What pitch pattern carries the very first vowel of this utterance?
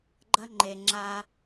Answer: high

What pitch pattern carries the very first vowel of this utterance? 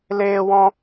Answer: high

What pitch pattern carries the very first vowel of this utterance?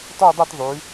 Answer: falling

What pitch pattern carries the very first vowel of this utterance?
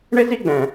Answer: high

